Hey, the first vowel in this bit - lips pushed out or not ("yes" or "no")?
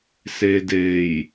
no